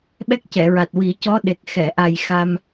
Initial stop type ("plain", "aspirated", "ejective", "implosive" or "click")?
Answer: implosive